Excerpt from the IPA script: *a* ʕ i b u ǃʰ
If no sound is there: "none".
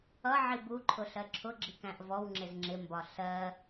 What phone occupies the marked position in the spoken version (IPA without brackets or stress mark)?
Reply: ʌ